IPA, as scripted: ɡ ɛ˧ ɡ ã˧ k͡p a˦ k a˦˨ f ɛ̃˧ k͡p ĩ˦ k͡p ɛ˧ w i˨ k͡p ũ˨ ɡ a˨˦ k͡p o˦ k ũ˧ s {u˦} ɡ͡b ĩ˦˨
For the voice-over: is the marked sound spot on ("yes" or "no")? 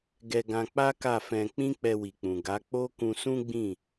no